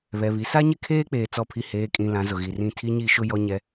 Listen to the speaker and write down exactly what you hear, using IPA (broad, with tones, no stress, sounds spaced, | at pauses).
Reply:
β ɛ˨ β i˨ s a˦ ɲ ɪ˦˨ kʰ eː˦ k͡p eː˨ t͡s ɔ˨ pʰ i˨ h eː˨ kʼ ĩ˨ l ã˨ z ʊ˨ ɣ i˨ r ĩ˦˨ tʰ i˦ ɲ i˦˨ ʃ ʊ˦ j ɔ˦ ɲ ɛ˦